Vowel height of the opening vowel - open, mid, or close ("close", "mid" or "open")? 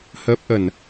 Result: mid